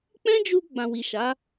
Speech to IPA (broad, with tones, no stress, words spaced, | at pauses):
k͡pɛ̃˦d͡ʒu˧ ɡ͡bã˨wi˨ʃa˨˦